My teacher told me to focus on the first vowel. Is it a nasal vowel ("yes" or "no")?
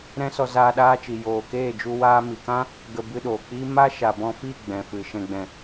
yes